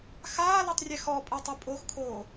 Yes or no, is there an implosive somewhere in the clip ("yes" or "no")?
no